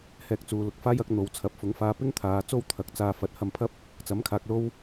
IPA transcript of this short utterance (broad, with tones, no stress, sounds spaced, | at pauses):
h ɛː˧ k̚ t͡s uː˨ l ʊ˧ k̚ f aː˥ j ɐ˨˥ k̚ n̪ o˨˧ w t͡sʰ ɐ˨˥ p̚ f ʊ˨˧ ŋ f aː˧ p ɪ˥ ŋ t̪ʰ aː˨˧ t͡s o˥ w t̪ʰ ɐ˨˥ k̚ t͡s aː˧ f ɐ˨˥ t̚ h ɐ˧ m pʰ ɐ˥ p̚ | t͡s ɐ˨˥ m kʰ aː˨ k̚ l o˥ w